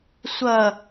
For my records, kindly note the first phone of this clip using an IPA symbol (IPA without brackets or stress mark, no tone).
sʷ